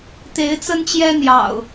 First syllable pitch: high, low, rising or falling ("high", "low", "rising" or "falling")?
rising